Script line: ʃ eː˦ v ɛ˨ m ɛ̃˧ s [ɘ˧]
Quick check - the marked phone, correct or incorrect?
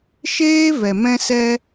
incorrect